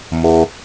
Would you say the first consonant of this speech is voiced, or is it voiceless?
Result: voiced